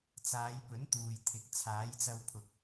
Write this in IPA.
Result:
t͡s aː˨˧ j p ɵ˨˥ n t̪ uː˨ j t̪ʰ ɪ˨˥ k̚ t͡sʰ aː˨˥ j t͡s ɐ˧ w pʰ ʊ˨ k̚

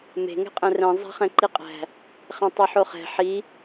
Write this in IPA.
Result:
m e̤ ŋ ɛ̤ qʼ ɛ̃ r ɛ̃ zˤ æ̤ χ ɛ̃ ǃ i qʼ æ̤ | χ ɛ̃ tˤ o ħ o χ ɛ̤ ħ i

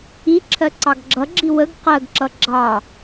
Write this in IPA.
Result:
i ǁʰ ɜ ǀ ɑ ɡ ɡ͡ǁ ʌ ɡ͡ǁ i w ə ɡ q ɜ ɡ ǁ ʌ ɡ͡ǁ ɑ

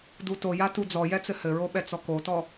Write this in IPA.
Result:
d u t o j a t u d͡z ɔ j ɛ t͡s ɘ h ɘ ɹ o ɓ ɛ t͡s ɔ k o t ɔ

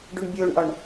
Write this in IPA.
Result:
ɖ u ɳ bʲ oː ɳ ʔ ɒ ɳ

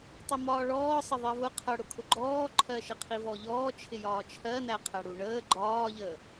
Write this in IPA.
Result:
tˤ ʊ m ɒː ɭ ɔː sˤ ə ðˤ ɜ v ʊ qʰ ʌ ɽ ʊ kʰ ʊ ɡ͡ǃ ɔː ǃʰ ɜ ʃ ə qʰ i v ɔ ʎ ɔː t͡ʃʰ ɪ j ɒː t͡ʃʰ ɜ n æ qʰ æ ɽ u ɳ əː ɡ͡ǃ ɒː ʎ əː

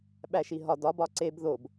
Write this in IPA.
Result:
ɓ æ ʃ i ɦ ɒ d ɒ b ɒ ǀ e b ð o b

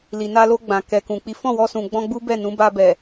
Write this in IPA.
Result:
l i˨ n a˧ l o˧ ɡ͡b ã˨ k ɛ˨ k ũ˨ k͡p i˨˦ f ɔ̃˦˨ w ɔ˧ s ũ˨ ɡ͡b ɔ̃˧ ɡ͡b u˦ b ɛ˦˨ n ũ˨˦ b a˧ b ɛ˨

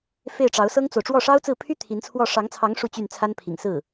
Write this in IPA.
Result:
f e˥˩ ɪ̯ ʈ͡ʂ ɑ˧˥ ʊ̯ s ɤ˥ ŋ t͡s o˨ ʊ̯ ʈ͡ʂ w ɔ˥˩ ʂ ɑ˥ ʊ̯ t͡s ɹ̩˥˩ pʰ y˥ t̪ʰ i˧˥ n t͡sʰ w ɔ˥˩ ʂ ɑ˧˥ ŋ t͡sʰ ɑ˧˥ ŋ ʂ u˥˧ t͡ɕ y˥˩ n t͡sʰ a˥ n pʰ ḭ˨˩ ŋ s ɹ̩˥˩

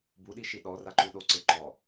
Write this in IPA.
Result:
b u ɗ i ʃ i ɗ ɔ r a ǃ u ɗ o ǀ ɪ ǃ ɔ

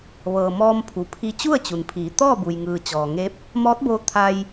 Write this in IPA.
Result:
ʋ ɤː˩ m ɔː˧ m pʰ u˩ pʰ i˧ t͡ɕ u˥˨ ə̯ t͡ɕ u˩ n pʰ iː˩˧ t̪ ɔː˥˨ b u˩ j ŋ ɯː˩ t͡ɕ ɔː˩ ŋ e˧˥ p̚ | m ɔː˧˥ t̚ b oː˧ t̪ʰ a˧ j

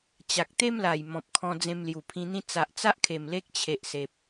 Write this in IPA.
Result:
t͡ɕ a˨ k̚ t̪ e˦ m l a˨˩ j m ɔ̃˨ p̚ kʰ ɔ̃˧ d͡z ẽ˧ m l j u˨˩ pʰ ĩ˧ n̪ ĩ˦ t͡s a˨ ʔ t͡s a˦ ʔ kʰ e˨˩ m l e˦ k̚ t͡ɕʰ e˨ ʔ s e˨ p̚

